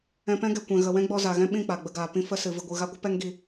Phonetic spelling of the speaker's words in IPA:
ɛ̃˧ p ɛ̃˦ ɡ ɛ˨ kʷ ɛ̃˨ ɣ ə˨ w ɛ̃˦ ɡ͡b ɔ˧ z a˨ ɣ ɛ̃˦ ɓ ĩ˦˨ k͡p a˨ ɡ͡b ə˧ ɡ aː˨ p ĩ˧ f ə˦ s ɨ˨ v ɨ˧ ɡʷ ɨ˧ ɣ a˦ ɡʷ ɨ˦ p ɛ˦ ŋ ɡ i˧

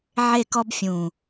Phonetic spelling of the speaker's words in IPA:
ʕ e˦˨ k ɔ˦ b fʲ ũ˨˩

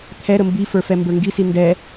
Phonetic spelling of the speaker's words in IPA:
t̪ʰ ɛ ɾ ə m b i f ə˞ f ɛ m b ə˞ ŋ ɡ i s i n d ɛ

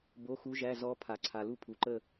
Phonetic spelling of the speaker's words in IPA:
b o˧˥˧ x u˧˥ ʒ æ˧˥˧ z ɔ˧˥ pʰ a˨ ǀʰ a˨ l u˦˨ pʰ u˨ ǃ ə˦˨

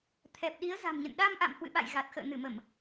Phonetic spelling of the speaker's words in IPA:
t̪ʰ ɛ˨˩ p̚ ɗ i˨˦ ə̯ z a̤˨˩ m ɲ ə̰˧˨ n ɗ a˧ m ʔ a̰˧˨ m h w ɨ̰˧˨ ɓ a̰˧˨ j ɣ a˨˩ t̚ x ə̰ː˧˨ n ɨ˧˩ m ə˧˩˨ m

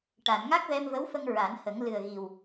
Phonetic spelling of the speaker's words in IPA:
ʈ a˨˩˨ n ŋ a˦˥ k̚ v ɛ˧ m v ə˧˥ w f ə˧ ŋ ɹ a˨˩˦ n h ə˨˩˦ ŋ l ɨ˨˩ ə̯ ɣ i˨˩ w

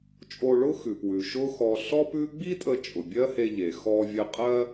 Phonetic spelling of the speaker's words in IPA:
t͡ʃʼ o˧ ɭ ʊ˥ x ʉ˩ p w ʉ˩ ʃ ʊ˥ x ɔ˧ ɬ ɔ˥ p ʉ˥ ɡ͡b i˥ tʼ ə˧ t͡ʃʼ ʊ˩ bʲ ɜ˥ h e˧ ʎ e˩ x ɔ˧ vʲ ə˧ qʼ ɜ˥

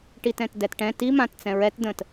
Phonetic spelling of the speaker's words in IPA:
ʈ i t ɛ̃ t d ɛ t ʈ ɛ̃ t i m ã t t͡s ɛ̃ ɹ ɛ t d ə̃ t

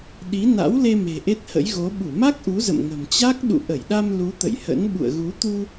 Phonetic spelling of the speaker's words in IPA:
ɗ i˨˦ n a̰˧˥ w l e˧ m e̤˨˩ ʔ e˦˥ t̚ h ə̰˧˥ j ɣ o˨˦ ɓ u˧˩ m a˦˥ k̚ ʔ u˨˦ z ə̰˧˨ m ŋ ə̤˨˩ m t͡ɕ a˦˥ k̚ ɗ ṵ˧˨ ʔ ə˧˩ j ɗ a˧ m l u˨˦ t̪ ə̰˧˨ j h ə̰˧˥ n ɓ ṵ˧˨ ə̯ ɣ u˨˦ t̪ u˧

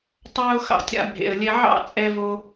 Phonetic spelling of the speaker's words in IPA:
tˤ ɑː˦ ʊ̯ x ɑ̰˧ tʲ ɾ a̰˧ bʱ ḛ˨ ə̯ lʲ ɛ˧ ʕ ɑ̰˦ t͡sʼ ɛ˧ v o˧

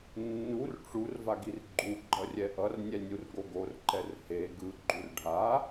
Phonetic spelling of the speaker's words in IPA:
nː u r ʈ͡ʂ u r v a ɡ i r ɡ͡ǃ u ɡ͡ǃ ʌ rʲ ɛ ʔ ʌ r nʲ ɛ nʲ u r ɡ o ɡ o r ǃ ɛ r h e ɡ ɯ ɡ͡ǃ u r ɖʱ a

